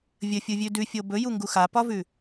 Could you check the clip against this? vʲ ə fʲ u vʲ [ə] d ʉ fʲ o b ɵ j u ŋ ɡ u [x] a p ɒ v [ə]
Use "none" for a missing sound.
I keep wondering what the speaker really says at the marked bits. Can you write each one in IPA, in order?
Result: ʉ, x, ʉ

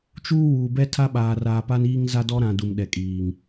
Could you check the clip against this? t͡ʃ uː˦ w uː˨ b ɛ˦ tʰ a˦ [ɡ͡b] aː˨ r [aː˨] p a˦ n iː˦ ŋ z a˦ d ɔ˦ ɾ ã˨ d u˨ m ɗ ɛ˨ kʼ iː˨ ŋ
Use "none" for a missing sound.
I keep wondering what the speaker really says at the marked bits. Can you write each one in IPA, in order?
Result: ɓ, aː˨

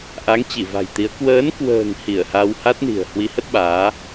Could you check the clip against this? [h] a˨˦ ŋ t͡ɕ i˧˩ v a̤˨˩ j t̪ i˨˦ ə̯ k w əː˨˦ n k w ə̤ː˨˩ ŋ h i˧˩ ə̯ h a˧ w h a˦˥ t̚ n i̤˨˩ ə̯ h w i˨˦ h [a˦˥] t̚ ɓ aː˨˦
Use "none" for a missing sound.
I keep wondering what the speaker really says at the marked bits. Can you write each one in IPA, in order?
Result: ʔ, ə˦˥

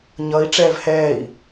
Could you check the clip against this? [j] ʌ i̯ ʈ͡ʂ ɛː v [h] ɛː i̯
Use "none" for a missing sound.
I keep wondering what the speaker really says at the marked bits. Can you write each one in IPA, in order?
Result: ɲ, h

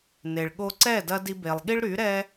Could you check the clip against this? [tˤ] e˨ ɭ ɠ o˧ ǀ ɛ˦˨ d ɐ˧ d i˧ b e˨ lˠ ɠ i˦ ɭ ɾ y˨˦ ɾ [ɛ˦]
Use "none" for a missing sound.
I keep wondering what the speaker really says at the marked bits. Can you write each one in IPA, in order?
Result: n, ɛ˦

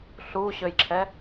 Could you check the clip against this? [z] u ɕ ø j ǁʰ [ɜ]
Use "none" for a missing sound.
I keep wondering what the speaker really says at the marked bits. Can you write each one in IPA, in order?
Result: ɬ, ɛ

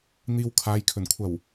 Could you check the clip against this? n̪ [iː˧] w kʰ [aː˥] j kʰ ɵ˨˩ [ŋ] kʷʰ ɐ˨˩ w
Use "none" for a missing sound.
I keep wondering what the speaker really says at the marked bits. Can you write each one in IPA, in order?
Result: iː˧, aː˨˧, n

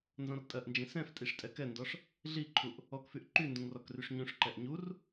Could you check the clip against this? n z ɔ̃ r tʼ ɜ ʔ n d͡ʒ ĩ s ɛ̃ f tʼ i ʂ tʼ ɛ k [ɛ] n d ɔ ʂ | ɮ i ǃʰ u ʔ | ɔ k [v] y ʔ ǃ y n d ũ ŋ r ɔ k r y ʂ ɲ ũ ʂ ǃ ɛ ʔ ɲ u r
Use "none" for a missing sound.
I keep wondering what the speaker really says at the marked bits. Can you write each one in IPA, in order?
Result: ɛ, f

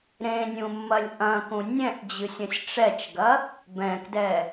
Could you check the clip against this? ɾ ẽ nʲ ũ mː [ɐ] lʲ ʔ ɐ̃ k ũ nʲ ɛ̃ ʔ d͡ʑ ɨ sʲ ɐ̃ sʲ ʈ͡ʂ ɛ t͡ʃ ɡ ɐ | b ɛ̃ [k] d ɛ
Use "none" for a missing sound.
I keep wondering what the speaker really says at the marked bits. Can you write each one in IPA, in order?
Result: ɐ, k

